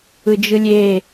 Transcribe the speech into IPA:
ɯd͡ʒɯlʲe

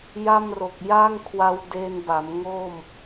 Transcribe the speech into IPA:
ja˥˩m ro˨˩k̚ja˥˩ŋkʰwa˧w deː˧nba˩˦m ŋo˥˩m

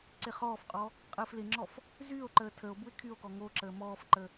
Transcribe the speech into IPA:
ǀɪχɔːfqʼɔ | qʼəːflɪŋ͡ǁɔf | zyːo̯ǃəː tʰəo̯ bue̯kʰyo̯kɔ ŋoǁəː mɔːfǃə

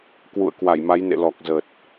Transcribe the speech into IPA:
kwṵ˧˨ə̯kwa˧˩jma˨˦jnḛ˧˨ lɔ˨˩k̚zə˨˩t̚

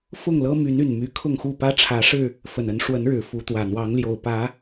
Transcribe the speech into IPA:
fʊ˥˨ŋlɤ˦ my˨˦ny˨˩n my˨˦kʰʊ˥˨ŋxu˥˨pä˦ ʈ͡ʂʰä˨˦ʂɻ̩˥˨ | fə˨˩nə˨˦n ʂwə˨˦nɻɻ̩˨˩ fu˨˦t̪wä˨˩n̪wɑ˨˦ŋljo˨˩ʊ̯ pä˨˦

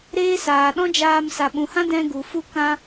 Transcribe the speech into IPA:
ɾeː˦ saː˨ɗɔ̃˦d͡ʒaː˧m sa˨ɓũ˨hã˦ dɛ̃˧ɡu˨ fu˧kã˧

